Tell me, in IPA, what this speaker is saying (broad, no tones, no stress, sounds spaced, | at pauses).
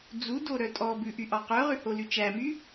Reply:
d͡z u d o ɾ œ tʼ ɔ b ʉ ʔ y ʔ ɑ q œ ʁ ʉ h o l y t͡ʃ æ m y